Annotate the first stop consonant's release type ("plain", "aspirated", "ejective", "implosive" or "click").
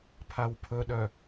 aspirated